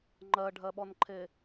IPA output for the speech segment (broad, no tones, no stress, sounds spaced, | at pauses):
ŋ͡ǃ ɜ ɖʱ ɜ ɓ ɔ n ǃʰ e